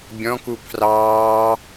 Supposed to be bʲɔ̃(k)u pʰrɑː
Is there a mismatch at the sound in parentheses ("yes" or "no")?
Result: no